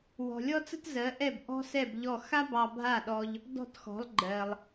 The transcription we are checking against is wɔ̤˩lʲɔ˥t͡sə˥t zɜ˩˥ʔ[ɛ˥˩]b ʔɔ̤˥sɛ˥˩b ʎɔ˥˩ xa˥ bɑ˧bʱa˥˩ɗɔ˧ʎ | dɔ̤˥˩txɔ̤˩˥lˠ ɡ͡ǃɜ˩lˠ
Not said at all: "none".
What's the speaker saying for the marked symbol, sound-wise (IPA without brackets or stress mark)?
ɛ˥˩